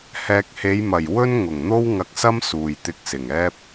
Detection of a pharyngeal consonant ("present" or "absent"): absent